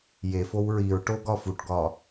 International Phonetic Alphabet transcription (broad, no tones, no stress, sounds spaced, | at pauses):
j e f o w ɹ i ɹ ʈ o ɡ ɒ f u ʈ ɡ ɒ